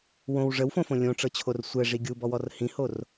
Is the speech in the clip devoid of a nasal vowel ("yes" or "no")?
no